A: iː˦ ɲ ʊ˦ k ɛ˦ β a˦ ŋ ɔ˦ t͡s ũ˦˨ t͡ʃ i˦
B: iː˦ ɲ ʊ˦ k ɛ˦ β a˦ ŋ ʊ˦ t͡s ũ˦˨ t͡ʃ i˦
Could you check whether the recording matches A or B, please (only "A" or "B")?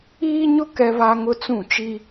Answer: B